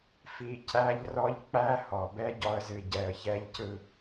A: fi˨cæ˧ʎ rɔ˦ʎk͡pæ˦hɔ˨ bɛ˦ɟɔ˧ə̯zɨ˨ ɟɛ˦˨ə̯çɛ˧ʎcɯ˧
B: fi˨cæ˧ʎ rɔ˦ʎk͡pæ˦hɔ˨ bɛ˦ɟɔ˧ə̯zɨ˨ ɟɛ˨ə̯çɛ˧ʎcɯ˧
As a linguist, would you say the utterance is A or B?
B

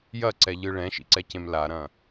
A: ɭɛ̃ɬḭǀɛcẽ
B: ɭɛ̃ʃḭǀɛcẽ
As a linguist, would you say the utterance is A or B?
B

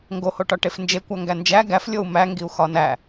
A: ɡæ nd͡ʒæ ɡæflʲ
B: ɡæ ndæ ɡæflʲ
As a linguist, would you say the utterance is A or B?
A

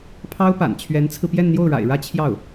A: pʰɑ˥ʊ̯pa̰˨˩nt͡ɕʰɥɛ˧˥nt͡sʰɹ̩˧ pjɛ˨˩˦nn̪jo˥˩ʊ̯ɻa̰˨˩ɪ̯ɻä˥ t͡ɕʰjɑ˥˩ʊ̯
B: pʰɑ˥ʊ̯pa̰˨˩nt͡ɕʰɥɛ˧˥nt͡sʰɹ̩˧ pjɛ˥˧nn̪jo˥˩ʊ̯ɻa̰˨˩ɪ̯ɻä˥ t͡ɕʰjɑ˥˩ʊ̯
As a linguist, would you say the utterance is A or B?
B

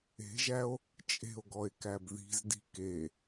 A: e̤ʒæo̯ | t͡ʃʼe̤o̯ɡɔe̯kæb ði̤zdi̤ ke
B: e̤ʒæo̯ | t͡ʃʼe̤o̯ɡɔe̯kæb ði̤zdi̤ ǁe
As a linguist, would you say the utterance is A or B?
A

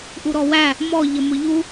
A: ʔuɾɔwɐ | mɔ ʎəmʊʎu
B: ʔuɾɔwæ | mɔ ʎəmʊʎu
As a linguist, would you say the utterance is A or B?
B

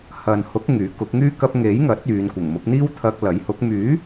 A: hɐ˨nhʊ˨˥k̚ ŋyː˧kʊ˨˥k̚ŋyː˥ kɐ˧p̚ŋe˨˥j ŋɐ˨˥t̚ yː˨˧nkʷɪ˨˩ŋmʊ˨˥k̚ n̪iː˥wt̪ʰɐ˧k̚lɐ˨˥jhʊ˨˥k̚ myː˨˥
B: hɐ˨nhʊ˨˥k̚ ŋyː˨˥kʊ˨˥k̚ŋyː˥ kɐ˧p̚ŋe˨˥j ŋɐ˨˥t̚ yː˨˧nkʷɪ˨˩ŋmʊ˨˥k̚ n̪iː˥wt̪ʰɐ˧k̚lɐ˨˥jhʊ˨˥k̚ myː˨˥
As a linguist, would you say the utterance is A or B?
B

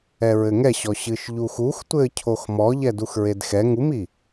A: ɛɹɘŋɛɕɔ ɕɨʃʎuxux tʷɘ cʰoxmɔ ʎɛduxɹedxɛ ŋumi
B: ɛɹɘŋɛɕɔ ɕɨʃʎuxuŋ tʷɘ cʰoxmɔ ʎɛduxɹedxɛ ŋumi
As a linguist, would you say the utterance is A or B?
A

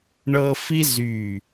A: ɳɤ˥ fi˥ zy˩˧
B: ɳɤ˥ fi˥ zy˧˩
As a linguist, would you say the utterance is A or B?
B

